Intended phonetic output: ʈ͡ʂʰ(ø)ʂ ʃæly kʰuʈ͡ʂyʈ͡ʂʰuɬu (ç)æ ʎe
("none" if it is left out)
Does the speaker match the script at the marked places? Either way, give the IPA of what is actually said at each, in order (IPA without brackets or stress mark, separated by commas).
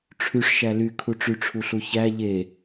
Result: y, ç